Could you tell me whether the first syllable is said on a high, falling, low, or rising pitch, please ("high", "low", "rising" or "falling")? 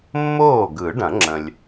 falling